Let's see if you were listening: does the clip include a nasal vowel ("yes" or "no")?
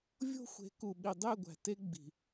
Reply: no